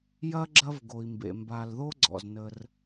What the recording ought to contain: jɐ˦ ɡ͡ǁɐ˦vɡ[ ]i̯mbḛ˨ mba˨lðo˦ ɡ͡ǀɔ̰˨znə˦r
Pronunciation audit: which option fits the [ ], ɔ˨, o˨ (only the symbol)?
o˨